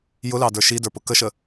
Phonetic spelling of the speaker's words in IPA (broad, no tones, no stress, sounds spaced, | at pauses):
j ʊ l ɑ d ə˞ ʃ i d ə˞ p ʊ k ə ʃ ə